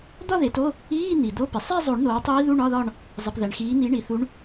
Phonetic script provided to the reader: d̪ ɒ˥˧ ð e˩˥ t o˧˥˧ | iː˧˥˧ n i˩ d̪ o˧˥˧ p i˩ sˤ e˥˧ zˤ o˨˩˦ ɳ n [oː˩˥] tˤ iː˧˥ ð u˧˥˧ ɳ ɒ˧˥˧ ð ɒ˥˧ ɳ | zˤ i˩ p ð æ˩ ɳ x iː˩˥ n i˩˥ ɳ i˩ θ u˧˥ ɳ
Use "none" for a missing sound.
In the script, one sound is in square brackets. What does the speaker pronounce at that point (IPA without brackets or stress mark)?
oː˩˥